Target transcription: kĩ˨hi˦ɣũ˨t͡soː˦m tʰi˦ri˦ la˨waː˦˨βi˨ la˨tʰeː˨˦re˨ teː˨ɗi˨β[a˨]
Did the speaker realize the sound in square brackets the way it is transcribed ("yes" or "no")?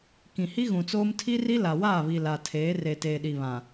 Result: no